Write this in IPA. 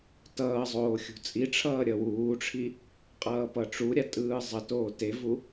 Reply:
t ʌː zˤ oː xʲ ṳ t͡sʼ i ʈ͡ʂʰ ʌː ɾʲ ʌ w uː ʈ͡ʂʰ i | qʼ ʌː p ʌ ʈ͡ʂ u ɾʲ a tʼ ɯː zˤ ʌ t oː t e v u

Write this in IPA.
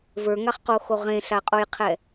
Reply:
v ə˞ ŋ a χ q o x o ʁ ẽ ɬ a qʼ o j qʰ ɛ

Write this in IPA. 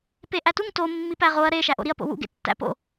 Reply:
p e ʔ æ t u ŋ t o mː i p æ ʁ o ɐ̯ ɾ e ʃ æ ʔ o̰ ɾ i ɐ̯ p o̰ w ṵ ɡ ḛ tː æ̰ p o̰

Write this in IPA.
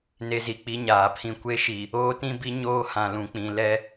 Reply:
n e˦ z i˨ k͡p i˦ ɲ aː˨ pʰ ĩ˦ kʷ e˦ ʃ i˨ | oː˦ t ĩ˦ b i˦ ɲ oː˦ h ã˨ l ũ˨ k͡p ĩ˨ l ɛ˦

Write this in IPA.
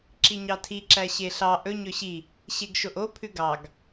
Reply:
ǁ i ɲ ɑ tʰ i ǁ æ ɕ e ɬ ɑ ʔ ɵ ɲ ɵ ɕ i | ɕ e ɡ ʃ o ʔ o pʰ ʉ ɡ ɑ ɡ

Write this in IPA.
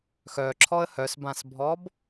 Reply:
x œ ǁʰ ɔ ə̯ h œ s b ã s bʱ ɔ b

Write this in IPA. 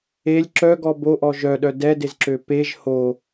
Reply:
e lʲ ǁ œ ɡ ɔ b o ʔ ɔ ʒ œ ɗ œ d ɛ d e z ǁ ø p e ʒ h o

